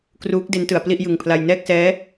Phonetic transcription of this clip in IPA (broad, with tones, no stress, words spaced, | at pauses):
kruː˦˥k̚ de˦˥ntɯ˩˦a̯ pli˥˩ʔjɯ˨˩ŋpʰla˧j nɛː˥˩k̚sɛː˦˥